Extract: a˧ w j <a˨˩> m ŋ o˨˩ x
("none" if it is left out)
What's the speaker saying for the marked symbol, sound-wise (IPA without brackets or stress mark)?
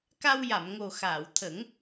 a˨˩˨